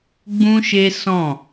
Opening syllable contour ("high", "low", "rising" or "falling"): high